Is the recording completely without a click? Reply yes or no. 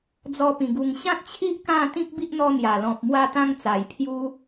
yes